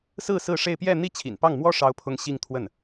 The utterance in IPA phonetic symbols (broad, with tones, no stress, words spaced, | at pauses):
sɹ̩˥˧ sɹ̩˥˧ʂe˥˧ɪ̯ pjɛ˥˧ n̪i˥˩ t͡ɕʰḭ˨˩npɑ˥˩ŋmwɔ˥ ʂɑ˥ʊ̯pʰʊ˥ŋ ɕi˥˧ŋ t̪ʰwə˥˩n